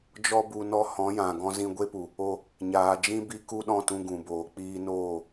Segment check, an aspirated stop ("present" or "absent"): absent